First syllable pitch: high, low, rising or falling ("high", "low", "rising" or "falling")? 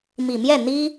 low